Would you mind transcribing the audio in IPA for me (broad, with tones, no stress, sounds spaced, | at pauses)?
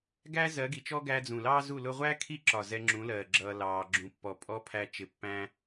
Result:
ɡ æ˦ z ɜ˨˦ ɡ i˨ t͡ʃ ɔ˦ ɡ æ˧ d͡z ũ˨ l ɑː˦ z u˦˨ l ʊ˧ ʁʷ æ˦ kʰ i˦˨ ǁ ɒ˨ z ɛ˧ ŋ͡ǁ ũ˨˦ l ɜː˨ ɡ͡ǁ ʌː˧ l ɑː˧ ɡ͡ǁ ũ˧ pː ɔ˧ pʼ ɔ˧ pʰ æ˧ t͡ʃ ɪ˧ pː æ̃˧